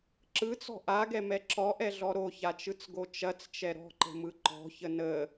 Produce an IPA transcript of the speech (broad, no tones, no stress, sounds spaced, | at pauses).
ǁ ɯ t͡s ɔ̤ ʔ a ɡ ɛ m ɛ ǁ ɔ ʔ ɛ ɮ ɔ ɾ o ç a t͡ʃ ɯ t͡s ɡ o t͡ʃ ɐ t͡s t͡ʃ ɛ ɾ ɔ̤ ǃ ə̤ m ɯ ǃ ɔ̤ ç ə n ə